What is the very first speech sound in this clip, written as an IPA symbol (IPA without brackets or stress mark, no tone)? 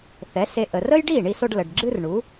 θ